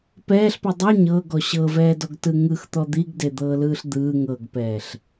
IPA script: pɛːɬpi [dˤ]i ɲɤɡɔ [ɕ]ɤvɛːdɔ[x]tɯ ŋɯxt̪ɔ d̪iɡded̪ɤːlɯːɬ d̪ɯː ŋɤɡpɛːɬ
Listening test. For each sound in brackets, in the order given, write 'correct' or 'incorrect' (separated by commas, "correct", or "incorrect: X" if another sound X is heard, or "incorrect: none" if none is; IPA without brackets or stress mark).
correct, correct, incorrect: ɡ